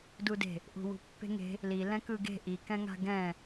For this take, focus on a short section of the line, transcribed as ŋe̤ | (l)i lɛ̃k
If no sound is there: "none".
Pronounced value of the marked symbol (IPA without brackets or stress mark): l